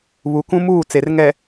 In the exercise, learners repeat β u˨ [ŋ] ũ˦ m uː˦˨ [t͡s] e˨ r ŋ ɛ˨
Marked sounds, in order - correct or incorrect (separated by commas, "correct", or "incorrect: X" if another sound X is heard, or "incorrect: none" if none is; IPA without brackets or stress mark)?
incorrect: k, correct